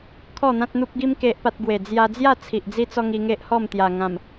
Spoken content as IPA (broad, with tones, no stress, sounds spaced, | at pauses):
kʰ ɔ˥˧ n̪ ã˦ t̚ n̪ u˦ p̚ ɡ i˦ m k e˦ ʔ p a˦ t̚ ɡ w e˨˩ d͡z j a˧ d͡z j a˥˧ t͡sʰ i˨ ʔ d͡z i˦ t͡s ɔ˦ ŋ i˧ ŋ e˦ ʔ h ɔ˥˧ m t̪ j a˨˩ ŋ ã˨˩ m